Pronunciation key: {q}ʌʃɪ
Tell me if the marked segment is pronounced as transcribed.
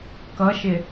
no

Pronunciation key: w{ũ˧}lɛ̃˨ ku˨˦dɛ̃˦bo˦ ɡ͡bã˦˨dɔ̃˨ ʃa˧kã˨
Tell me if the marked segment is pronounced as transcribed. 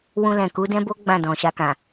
yes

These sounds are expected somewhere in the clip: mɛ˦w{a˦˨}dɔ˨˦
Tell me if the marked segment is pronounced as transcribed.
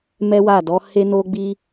yes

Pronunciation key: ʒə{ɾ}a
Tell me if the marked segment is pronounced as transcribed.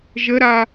yes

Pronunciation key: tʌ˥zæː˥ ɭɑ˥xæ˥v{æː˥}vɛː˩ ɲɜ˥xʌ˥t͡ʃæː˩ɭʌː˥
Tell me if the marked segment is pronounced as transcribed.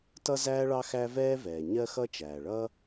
no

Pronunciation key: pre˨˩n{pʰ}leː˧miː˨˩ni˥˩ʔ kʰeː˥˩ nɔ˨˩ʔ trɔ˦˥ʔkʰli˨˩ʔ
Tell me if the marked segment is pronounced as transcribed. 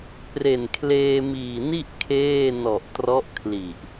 no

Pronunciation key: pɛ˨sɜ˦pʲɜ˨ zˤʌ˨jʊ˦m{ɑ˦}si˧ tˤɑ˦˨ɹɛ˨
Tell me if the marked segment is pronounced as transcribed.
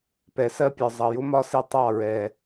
no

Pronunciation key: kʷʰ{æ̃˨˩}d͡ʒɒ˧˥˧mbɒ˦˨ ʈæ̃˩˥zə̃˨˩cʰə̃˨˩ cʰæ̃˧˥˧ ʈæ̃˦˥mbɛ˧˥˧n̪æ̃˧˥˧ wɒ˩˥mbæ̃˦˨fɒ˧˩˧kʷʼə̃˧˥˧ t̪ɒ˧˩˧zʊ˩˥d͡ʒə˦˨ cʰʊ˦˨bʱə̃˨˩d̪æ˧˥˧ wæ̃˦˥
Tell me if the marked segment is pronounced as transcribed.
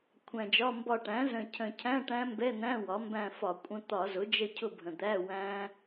yes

